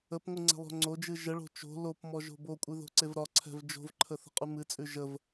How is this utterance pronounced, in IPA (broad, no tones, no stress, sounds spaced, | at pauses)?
ə p ŋʷ ɨ ŋ͡ǀ ɛ̤ lˠ o̤ ŋ͡ǀ o d͡ʒ ɨ ʒ ə ɭ o̤ t͡ʃ o̤ l o p m ɔ ʒ o̤ b o kʷʼ ɨ ð o̤ ǀ e v ɾ ɒ ǀʰ ɛ̤ v d͡ʒ o̤ v ǃʰ ə θ ə̤ qʼ ʉ m ɨ t͡sʼ ʉ ʒ ə v